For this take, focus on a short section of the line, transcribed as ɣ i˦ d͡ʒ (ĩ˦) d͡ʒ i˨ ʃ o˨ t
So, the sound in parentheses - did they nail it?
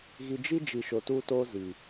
no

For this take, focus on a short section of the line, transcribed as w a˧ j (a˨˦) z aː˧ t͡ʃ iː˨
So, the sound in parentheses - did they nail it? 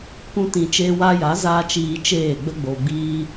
yes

